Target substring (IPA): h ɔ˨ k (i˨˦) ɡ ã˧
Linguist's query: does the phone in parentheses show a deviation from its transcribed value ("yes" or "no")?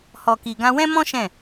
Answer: yes